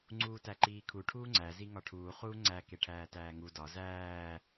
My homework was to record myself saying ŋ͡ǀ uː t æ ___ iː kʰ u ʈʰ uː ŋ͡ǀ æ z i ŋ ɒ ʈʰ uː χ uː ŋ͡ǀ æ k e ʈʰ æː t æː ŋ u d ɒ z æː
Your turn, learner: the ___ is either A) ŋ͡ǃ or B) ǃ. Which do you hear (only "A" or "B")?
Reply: B